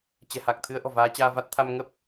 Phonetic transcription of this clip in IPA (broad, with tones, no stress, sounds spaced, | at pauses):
t͡ɕ ɛ̤˨˩ h a˨˩ k̚ t̪ʰ ɨ˨˦ ə̯ ʔ ɔ̤˨˩ v aː˨˦ t͡ɕ aː˧ v a˦˥ t̚ t̪ʰ a˧ m ŋ ə˦˥ p̚